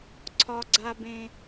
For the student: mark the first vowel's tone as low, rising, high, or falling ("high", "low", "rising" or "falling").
high